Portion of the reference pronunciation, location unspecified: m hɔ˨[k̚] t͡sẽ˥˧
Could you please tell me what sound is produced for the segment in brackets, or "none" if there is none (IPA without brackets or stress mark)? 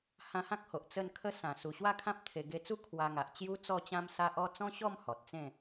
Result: t̚